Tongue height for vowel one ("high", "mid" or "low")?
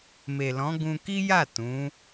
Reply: mid